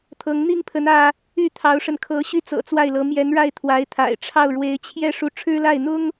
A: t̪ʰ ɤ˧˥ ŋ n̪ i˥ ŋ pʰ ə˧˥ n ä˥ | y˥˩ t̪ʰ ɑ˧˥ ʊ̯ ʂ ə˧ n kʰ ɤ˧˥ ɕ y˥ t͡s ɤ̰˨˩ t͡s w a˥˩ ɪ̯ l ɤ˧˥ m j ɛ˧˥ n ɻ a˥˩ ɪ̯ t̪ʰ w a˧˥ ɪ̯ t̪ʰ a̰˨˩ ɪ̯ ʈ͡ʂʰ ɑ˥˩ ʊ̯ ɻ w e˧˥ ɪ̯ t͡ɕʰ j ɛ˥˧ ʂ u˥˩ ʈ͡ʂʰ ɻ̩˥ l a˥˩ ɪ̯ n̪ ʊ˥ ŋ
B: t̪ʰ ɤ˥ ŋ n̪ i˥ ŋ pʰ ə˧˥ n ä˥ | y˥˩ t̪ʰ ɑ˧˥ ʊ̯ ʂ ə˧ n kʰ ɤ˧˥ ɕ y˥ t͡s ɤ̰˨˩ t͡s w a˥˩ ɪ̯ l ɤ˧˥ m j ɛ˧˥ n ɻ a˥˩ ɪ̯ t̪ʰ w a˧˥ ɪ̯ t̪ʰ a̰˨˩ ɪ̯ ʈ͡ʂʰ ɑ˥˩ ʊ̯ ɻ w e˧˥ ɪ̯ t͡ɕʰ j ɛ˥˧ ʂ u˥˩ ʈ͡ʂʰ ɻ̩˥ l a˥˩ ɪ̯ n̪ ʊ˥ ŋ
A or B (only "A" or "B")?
A